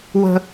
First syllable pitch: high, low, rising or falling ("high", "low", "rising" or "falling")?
high